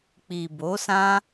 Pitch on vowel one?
low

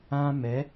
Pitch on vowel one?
high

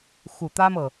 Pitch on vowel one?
low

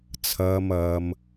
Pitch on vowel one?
low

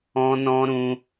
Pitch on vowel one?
high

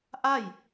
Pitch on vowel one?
falling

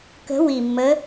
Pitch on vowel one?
rising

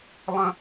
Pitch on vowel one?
high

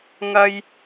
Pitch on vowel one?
high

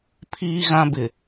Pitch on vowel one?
high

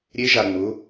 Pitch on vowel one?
rising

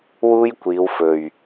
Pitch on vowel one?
high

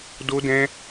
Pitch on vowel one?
high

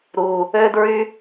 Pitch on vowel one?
high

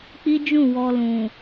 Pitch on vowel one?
high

